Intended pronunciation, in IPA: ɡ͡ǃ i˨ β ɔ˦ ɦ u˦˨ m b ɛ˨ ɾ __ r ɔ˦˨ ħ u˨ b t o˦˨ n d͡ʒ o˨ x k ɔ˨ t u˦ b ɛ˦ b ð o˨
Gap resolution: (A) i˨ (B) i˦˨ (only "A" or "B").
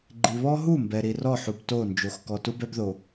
A